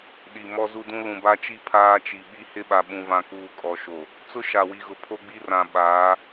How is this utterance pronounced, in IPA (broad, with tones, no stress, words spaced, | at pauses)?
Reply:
ɗi˨ mɔ˦zu˦dũ˦ lũ˨ba˦t͡ʃi˦ pʰaː˦t͡ʃi˨ ɓi˦hɪ˦ɓa˨ ɓũ˨vã˨kuː˨ kʼɔ˨ʃo˨ | t͡sʊ˦ʃa˨wi˨ɣʊ˨ pʰo˦ɡ͡bi˦rã˨ ɓaː˨˦